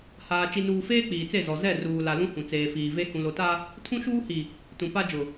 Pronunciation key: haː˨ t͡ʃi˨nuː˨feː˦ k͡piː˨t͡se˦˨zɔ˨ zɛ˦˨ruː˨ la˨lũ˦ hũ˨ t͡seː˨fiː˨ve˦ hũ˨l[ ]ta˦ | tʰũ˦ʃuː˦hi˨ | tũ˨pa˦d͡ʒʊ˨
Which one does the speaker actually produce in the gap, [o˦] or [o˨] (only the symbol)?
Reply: o˨